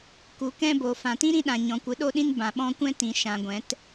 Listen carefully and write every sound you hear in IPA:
k u˨˦ k ɛ̃˦ b o˨ f ã˨ t ĩ˦ ɾ ĩ˧ ɗ ã˨ ɲ ɔ̃˨ kʷ ɨ˨˦ ɗ o˦ ɗ ĩ˦ n b ã˨ ɓ ɔ̃˧ kʷ ɛ̃˦ t ĩ˨ ʃ ã˨ ɡʷ ɛ̃˨˦ t

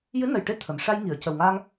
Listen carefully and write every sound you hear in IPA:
j ɨ˧˥ n ə˨˩ j ʈ e˧ t̪ʰ ə˨˩˨ m ʂ a˧ j ŋ i˨˩˨ ə̯ c ə˨˩ w ŋ a˧ ŋ

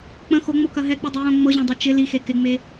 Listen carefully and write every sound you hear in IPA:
k͡p ə̃ x o ŋ͡m o k ɐ ɦ ɛ k͡p ɯ dˤ ɯ w õ ŋ͡m ɤ ʑ õ dˤ o t͡ʃ ɪ l i x e k ɪ ŋ͡m e

